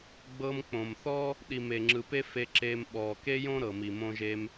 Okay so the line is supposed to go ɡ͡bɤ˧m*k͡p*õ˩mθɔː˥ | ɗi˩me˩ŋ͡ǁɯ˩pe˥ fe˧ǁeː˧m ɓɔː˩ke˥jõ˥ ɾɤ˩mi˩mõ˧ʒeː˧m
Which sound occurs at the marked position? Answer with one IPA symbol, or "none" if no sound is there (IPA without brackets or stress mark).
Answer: k͡p